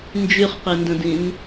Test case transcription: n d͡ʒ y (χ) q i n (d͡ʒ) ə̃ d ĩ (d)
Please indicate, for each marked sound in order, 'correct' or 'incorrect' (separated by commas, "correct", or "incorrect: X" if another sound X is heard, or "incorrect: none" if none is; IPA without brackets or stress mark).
correct, incorrect: d, incorrect: n